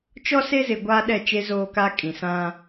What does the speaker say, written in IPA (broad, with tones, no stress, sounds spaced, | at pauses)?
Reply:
t͡ʃ ɔ˦ s e˦ z ɪ˨ ɡʷ aː˦ ɗ ɛ˦˨ t͡ʃ e˦ z oː˦ k a˦ kʼ ĩ˨ s ã˦